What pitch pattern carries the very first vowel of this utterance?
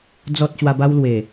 low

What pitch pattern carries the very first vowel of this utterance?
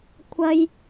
high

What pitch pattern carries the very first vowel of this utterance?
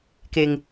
low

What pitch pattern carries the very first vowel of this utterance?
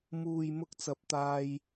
low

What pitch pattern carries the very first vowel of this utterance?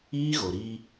high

